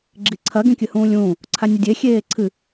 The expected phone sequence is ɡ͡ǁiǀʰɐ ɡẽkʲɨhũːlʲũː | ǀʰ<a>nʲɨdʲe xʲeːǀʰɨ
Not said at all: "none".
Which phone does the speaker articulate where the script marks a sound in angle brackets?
a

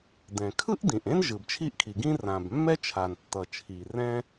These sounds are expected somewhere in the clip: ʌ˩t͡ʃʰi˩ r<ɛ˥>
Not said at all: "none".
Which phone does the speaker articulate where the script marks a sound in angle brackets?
ɛ̃˥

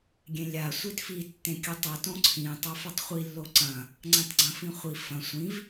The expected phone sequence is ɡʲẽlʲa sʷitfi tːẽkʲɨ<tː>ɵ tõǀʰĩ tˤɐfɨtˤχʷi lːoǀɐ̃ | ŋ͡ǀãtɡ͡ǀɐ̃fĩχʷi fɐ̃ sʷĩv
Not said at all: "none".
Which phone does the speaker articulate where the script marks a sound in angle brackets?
tˤ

